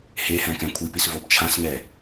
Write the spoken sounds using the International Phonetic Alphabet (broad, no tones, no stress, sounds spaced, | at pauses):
h e h ɛ̃ k ɛ̃ kʷʰ i p i s v o b t͡ʃʰ ã s ŋ ɛ